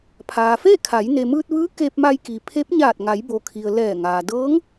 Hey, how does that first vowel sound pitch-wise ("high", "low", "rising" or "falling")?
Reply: low